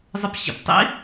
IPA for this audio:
zˤ ə p ɕ ə̰ p tˤ ḭ

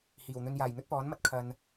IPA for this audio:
h iː˨˩ w n̪ ɵ˧ n j aː˨˩ j n̪ ɵ˥ t̚ p ɔː˨˥ n m ɐ˨ t̚ kʰ ɐ˨ n

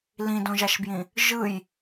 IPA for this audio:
l ĩ d õ ʒ a ʃ b j ĩ | ʒ ɯ j

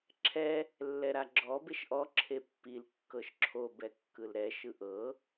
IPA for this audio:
ǁʰ ɛ | lː ɛ ɾ a ɡ͡ǁ ɔ b e ʃ ʔ ɔ ǁʰ e pː i l kː ɤ ʃ ǁʰ o b ɛ kː ɯ l ɾ ɛ ʃ ɯ ʔ ɤ

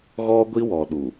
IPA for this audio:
ɣ ɔ˦ ɡʷ i˦ w ɔ˨ ɗ u˨

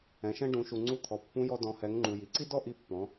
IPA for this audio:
ɛ̃˩ ʃ ɛ̃˧ ɖ ũ˩˧ ʃ u˩ ŋ͡ǀ u˧ t̪ʰ ɔ˩ pː ũ˧˥ j ɔ˧ d ɔ̃˩˧ h ɛ˩˧ ŋ ŋ͡ǃ u˩ j i˩ ǀ i˥ d ɔ˥ ʔ i˧ pː ɔ̃˩˧

